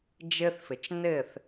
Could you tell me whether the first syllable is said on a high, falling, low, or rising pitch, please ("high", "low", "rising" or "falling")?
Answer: high